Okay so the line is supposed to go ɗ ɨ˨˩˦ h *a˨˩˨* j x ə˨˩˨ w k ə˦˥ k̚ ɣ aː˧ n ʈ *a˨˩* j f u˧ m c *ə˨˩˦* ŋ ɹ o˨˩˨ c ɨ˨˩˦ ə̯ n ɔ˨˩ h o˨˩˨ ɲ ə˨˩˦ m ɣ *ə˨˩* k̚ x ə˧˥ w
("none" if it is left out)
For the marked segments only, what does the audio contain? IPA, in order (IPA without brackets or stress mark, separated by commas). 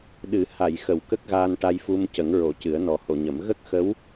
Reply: a˨˩˨, a˧, ə˨˩˦, ə˦˥